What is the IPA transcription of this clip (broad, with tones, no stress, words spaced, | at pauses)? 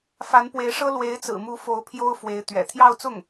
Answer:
fa˧˥npwe˧˥ɪ̯ʂɤ˥ lwe˧˥ɪ̯t͡sɹ̩˨˩mu˧˥ fo˧˥ʊ̯ pʰjo˥ʊ̯fwe˧˥ɪ̯ t̪ɥɛ̰˨˩ t̪ʰjɑ˥˧ʊ̯t͡sʊ˥˩ŋ